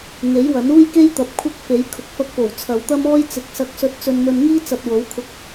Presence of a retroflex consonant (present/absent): absent